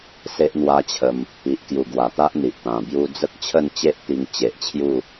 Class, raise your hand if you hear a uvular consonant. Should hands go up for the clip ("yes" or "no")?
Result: no